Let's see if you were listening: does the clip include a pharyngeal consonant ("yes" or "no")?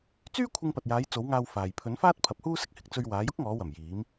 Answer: no